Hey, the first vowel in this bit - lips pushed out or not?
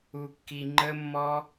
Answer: yes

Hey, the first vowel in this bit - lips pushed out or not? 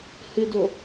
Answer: no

